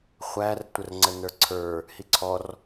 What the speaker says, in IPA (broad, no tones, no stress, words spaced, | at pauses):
χʷærtʷərŋ͡ǀə nə˞ǀʰə˞ | hiǀʰɔr